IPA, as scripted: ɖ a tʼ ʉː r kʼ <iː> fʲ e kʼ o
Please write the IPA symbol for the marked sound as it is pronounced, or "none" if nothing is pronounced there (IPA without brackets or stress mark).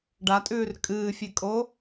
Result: ɨː